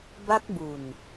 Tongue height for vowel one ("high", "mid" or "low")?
low